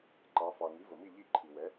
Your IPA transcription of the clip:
ǃ ɑ˩˧ f ɑ˩ ŋ i˩˥ v ə˩ m i˥˨ ʎ i˥˨ ǃʰ i˩ w ɛ˩˥

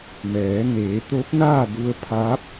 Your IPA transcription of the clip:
m ɛː˩˧ n eː˩˧ t̪ o˧˥ p̚ n aː˥˨ d u˧ ə̯ pʰ aː˧˥ p̚

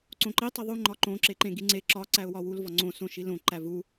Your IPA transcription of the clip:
ǀ õ ǃ i tˤ i ðˤ u ŋ͡ǃ ɒ ǃ õ ǁ e ǃ ẽ ɡ i ŋ͡ǀ e ǁ ɒ ǀ æ ʊ̯ w ɒ w u l v ɒ ŋ͡ǀ õ s õ ʃ i l õ ǃ æ v u

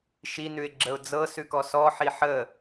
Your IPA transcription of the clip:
ʃ i n ʉ ɪ̯ ɡ͡ǁ ə ʊ̯ d͡z ɤ s ʉ k ɔ s ɔ ħ i ħ ə

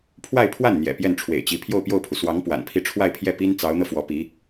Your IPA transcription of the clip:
pʰ w a˥˧ ɪ̯ pʰ w a˥˩ n n̪ j ɛ̰˨˩ p j ɛ˥˩ n ʈ͡ʂʰ w ḛ˨˩ ɪ̯ t͡ɕ i˧˥ pʰ j o˥˧ ʊ̯ p j o˥˩ ʊ̯ pʰ u˩ s w ɑ˧˥ ŋ p w a̰˨˩ n pʰ i˥˧ ʈ͡ʂʰ w a˥˧ ɪ̯ pʰ j ɛ˥˩ p i˥ n t͡s ɑ˧˥ ʊ̯ n̪ ɤ˧ f w ɔ˧˥ p i˧˥

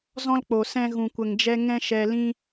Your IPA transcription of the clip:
z ɔ̃˦ l k͡p o˨ s ɛ̃˧ ɣ ũ˨ kʷ ə˨ ŋ d͡ʒ ɛ˧ ŋ ɛ̃˦ ʃ ɛ˧ l ĩ˦

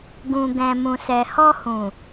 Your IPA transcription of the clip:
ɡ ũ˨ ɡ ɛ̃˨ m ũ˨ s ɛ˨ h ɔ˧ h ũ˨

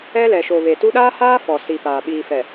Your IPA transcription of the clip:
ɛ˦ l ɛ˨ ʃ o˨ β e˨ t u˦ ɗ aː˦ h aː˦ f ɔ˨ s i˨ p aː˨ ɓ iː˨ f ɛ˨

